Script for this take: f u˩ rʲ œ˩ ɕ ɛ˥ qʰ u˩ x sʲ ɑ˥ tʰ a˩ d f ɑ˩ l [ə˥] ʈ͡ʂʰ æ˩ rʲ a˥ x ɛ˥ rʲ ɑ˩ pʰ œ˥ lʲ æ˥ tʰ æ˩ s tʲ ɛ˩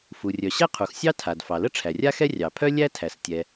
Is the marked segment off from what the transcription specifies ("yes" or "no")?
no